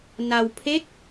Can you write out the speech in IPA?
n a˧ w pʰ e˦˥ k̚

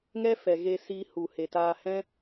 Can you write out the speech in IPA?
ŋ ɛ˦ f ɛ˨ ɣ e˧ s iː˧ h u˨ h e˨ t aː˧ h ɛ̃˦

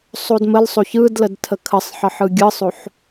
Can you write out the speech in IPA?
sˤ o d m ə l sˤ o ç ɯ d l ə d tʰ ə kʰ ə sˤ ħ ə ħ ɯ ɡʲ ɯ sˤ o ħ

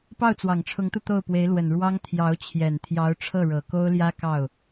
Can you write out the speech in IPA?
p ɑ˥˩ ʊ̯ t͡s w ɑ˨˩ ŋ ʈ͡ʂʰ ʊ˧˥ ŋ t̪ u˧ t̪ o˥˩ ʊ̯ p w e˧˥ ɪ̯ l w ə˨˩ n ɻ w ɑ˥ ŋ t̪ʰ j ɑ˧˥ ʊ̯ t͡ɕʰ j ɛ˨˩ n t̪ʰ j ɑ˧˥ ʊ̯ ʈ͡ʂʰ ɤ˥˩ ɻ ɤ˨˩ k o˥ ʊ̯ l j ä˥ k ɑ˥˩ ʊ̯

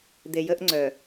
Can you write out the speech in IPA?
d̪ e˨ j ə˦ ʔ ŋ͡ǀ œ˨

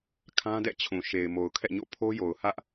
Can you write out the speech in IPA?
kʰ ã˦ d ɛ̰˦˨ t͡ɕʰ ũ˨ ʃ e˨ ɪ̯ m o˨ ʊ̯ kʰ ɛ̰˦˨ ɲ o̰˦˨ pʰ o˦ j o˨ ʊ̯ h ä˦ ʔ

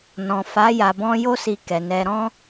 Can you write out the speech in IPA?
n ɔ̃˨ f a˨˦ j a˧ b ɔ̃˦ j o˧ s i˨ k ɛ˨ n ɛ˧ ɾ ɔ̃˦

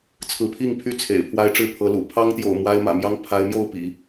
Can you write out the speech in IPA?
t͡sʰ ɹ̩˧˥ pʰ i˥˧ ŋ pʰ y˥˩ t͡sʰ ḛ˨˩ ɪ̯ pʰ w a˥ ɪ̯ ʈ͡ʂ ɻ̩˥˩ pʰ ɤ˧˥ l ṵ˨˩ pʰ ɑ˥ ŋ t̪ j o̰˨˩ ʊ̯ m w a˥ ɪ̯ m ä̰˨˩ m j ɑ˥ ŋ pʰ a˧˥ ɪ̯ m j o˥˩ ʊ̯ p ḭ˨˩˦

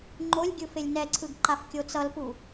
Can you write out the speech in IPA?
ŋ͡ǃ o lʲ ɡʲ ɯ f e lʲ n ɛ ǀʰ ɯ ɡ ǃ a f kʲ o t͡s ʌ l p u

